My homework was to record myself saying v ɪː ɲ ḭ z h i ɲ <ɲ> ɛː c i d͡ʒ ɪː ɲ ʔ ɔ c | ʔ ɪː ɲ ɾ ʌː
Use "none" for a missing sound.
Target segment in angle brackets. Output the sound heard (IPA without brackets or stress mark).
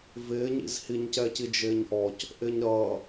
c